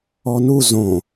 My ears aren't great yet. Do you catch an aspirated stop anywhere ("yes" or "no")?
no